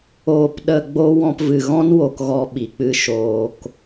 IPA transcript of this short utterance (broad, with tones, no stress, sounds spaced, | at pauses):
oː˨ p ɗ ə˨ ɡ͡b o˦ w ɔ̃˧ p v ɨ˨ ɣ ɔ̃˦ n w o˧ k ɣ ɔ˧ ɓ i˨ k͡p ɨ˧ ʃ oː˧ k